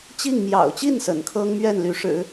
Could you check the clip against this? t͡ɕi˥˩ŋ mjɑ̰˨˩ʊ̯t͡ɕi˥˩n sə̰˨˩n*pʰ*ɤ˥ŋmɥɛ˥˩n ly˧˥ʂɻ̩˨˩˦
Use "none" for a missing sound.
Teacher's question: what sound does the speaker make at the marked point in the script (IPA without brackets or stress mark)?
kʰ